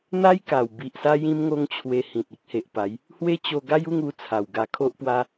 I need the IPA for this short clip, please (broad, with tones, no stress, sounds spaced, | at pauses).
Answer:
n̪ a˦ j k a˨˩ w b i˨ ʔ s a˦ j ĩ˦ m ŋ o˦ ŋ t͡ɕʰ w e˧ h ĩ˨ t̚ i˦ k̚ h e˨ ʔ p a˨˦ j | h w e˦ t͡ɕ o˧ ɡ a˦ j u˥˧ ŋ u˧ t͡sʰ a˨˩ w ɡ a˧ kʰ o˦ ʔ p w a˦